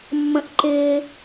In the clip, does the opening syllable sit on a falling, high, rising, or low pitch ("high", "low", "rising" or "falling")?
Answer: high